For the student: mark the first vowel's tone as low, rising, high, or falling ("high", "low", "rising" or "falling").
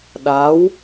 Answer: rising